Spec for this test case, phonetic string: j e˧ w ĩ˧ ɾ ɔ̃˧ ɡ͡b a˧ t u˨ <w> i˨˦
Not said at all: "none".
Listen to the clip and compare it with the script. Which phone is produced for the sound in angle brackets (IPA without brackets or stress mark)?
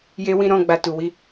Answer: w